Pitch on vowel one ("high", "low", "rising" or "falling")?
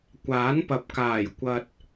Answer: rising